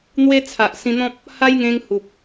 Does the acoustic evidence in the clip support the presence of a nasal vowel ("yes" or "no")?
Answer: yes